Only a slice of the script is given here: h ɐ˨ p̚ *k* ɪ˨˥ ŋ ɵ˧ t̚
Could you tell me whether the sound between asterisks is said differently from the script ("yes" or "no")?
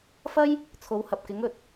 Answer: no